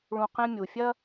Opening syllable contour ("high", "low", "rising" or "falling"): low